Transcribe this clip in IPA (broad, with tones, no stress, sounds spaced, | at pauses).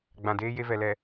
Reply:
ɡ͡b ã˨ d eː˦ j e˦ v ɛ˨ l ɛ˨